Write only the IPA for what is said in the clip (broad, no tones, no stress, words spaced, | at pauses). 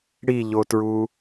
ɽiʎotɹu